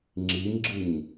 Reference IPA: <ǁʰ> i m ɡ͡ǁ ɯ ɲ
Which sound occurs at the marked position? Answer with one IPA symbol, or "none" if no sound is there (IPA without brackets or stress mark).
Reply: ŋ͡ǁ